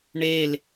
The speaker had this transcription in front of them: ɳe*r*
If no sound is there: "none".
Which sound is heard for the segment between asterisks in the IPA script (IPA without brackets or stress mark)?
l